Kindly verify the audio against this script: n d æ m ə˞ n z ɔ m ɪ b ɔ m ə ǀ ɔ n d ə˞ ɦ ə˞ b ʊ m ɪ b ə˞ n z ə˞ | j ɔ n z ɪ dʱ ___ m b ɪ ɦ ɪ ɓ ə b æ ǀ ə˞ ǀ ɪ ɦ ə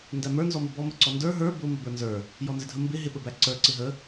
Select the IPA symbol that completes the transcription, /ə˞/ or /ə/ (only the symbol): ə